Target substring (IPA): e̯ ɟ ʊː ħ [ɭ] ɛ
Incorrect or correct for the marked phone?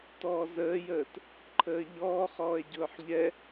incorrect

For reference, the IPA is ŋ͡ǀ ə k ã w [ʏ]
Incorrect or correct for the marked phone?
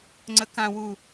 incorrect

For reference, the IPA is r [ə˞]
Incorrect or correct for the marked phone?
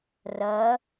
incorrect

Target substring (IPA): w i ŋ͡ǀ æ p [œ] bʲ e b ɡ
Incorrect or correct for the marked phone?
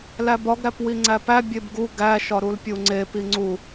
incorrect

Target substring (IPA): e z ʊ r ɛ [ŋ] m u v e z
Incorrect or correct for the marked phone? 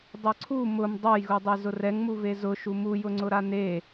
correct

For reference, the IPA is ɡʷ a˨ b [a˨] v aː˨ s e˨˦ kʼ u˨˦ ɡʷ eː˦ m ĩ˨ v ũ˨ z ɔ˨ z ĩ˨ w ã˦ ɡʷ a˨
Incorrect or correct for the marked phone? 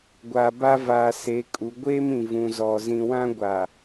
incorrect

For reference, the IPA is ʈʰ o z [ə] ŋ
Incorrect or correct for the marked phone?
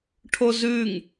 incorrect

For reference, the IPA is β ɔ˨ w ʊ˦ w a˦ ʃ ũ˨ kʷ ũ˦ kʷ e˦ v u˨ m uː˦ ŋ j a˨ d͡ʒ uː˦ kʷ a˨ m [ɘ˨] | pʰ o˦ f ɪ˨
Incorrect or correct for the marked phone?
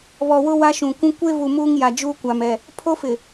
incorrect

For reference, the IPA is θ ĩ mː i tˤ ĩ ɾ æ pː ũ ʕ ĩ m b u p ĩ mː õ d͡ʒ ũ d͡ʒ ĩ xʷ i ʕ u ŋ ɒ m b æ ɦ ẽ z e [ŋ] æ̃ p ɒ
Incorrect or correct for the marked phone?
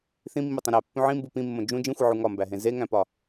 correct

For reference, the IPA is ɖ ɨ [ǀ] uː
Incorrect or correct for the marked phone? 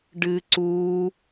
correct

